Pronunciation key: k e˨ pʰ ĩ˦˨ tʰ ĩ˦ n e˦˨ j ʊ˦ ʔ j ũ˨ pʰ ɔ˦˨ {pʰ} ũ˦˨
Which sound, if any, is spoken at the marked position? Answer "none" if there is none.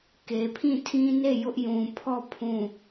pʰ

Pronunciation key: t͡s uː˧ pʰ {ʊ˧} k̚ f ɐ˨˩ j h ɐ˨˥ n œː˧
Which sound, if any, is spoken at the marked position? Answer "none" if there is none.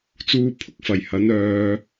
ʊ˥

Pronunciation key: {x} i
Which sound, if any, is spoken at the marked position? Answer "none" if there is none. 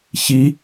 ç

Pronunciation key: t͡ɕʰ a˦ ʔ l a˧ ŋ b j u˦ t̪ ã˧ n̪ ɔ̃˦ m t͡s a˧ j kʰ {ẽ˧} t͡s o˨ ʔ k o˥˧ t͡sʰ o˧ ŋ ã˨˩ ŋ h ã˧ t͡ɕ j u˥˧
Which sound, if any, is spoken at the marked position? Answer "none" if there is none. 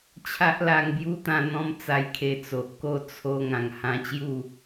e˧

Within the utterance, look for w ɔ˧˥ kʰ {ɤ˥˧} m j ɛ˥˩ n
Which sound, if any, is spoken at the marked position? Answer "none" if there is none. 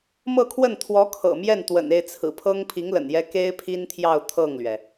ɤ̰˨˩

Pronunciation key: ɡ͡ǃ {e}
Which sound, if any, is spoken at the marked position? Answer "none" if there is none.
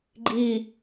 i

